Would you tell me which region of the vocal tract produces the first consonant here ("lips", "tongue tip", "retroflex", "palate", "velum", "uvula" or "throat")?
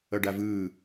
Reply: retroflex